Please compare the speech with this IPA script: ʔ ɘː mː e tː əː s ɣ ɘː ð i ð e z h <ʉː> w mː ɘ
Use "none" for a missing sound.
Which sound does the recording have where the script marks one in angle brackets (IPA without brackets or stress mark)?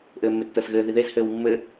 ɘː